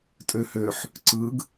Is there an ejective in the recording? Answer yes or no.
yes